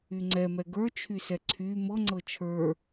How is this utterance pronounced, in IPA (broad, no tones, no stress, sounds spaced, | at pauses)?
y ŋ͡ǀ ɛ m ɛ ɡ ə˞ t͡ʃʰ y s ɛ ǀʰ y m ɤ ŋ͡ǀ ɤ t͡ʃʰ ə˞